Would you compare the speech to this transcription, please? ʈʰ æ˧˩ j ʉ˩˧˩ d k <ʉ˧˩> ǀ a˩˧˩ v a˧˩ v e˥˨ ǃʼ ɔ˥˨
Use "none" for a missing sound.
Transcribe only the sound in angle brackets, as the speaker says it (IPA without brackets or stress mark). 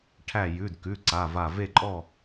ʉ˩˧˩